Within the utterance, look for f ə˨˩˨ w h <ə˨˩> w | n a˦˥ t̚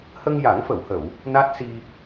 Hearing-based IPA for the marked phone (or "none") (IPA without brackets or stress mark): ə˨˩˨